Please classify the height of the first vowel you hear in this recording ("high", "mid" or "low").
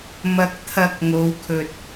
low